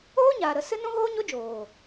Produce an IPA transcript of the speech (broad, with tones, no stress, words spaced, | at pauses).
oː˦ɲaː˨ ɾə˨sɨ˦ nũ˦ɣoː˦ɲo˦d͡ʒoː˨